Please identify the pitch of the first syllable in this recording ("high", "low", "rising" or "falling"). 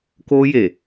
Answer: high